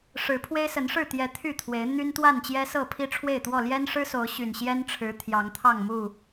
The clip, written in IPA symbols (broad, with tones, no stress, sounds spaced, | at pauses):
ʂ ɻ̩˨˦ pʰ w e˦ ɪ̯ s ə˨˦ n ʂ ɻ̩˥˨ t̪ j ɛ˨˦ t̪ʰ y˥˨ t̪ʰ w e˨˦ ɪ̯ n̪ y˦ n t̪ w a˥˨ n t͡ɕ j ɛ˦ s ɤ˥˨ pʰ i˦ ʈ͡ʂʰ w e˥˨ ɪ̯ t̪ w ɔ˥˨ l j ɛ˦ n ʂ ɻ̩˦ s o˨˦ ʊ̯ ɕ y˨˩ n ɕ j ɛ˦ n ʈ͡ʂʰ ɻ̩˨˦ t̪ʰ j ɑ˨˦ ŋ t̪ʰ ɑ˥˨ ŋ m u˥˨